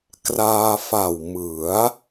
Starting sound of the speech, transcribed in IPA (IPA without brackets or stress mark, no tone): k